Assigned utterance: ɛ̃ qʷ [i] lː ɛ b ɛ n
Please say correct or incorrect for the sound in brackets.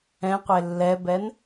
incorrect